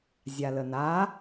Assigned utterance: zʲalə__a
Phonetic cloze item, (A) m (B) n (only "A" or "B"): B